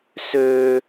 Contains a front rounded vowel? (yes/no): yes